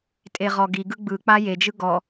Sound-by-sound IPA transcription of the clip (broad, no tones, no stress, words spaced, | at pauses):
tʼeʁɔɡiɡɯ ɡ͡bɯk͡pa jed͡ʒɯ ɡɔ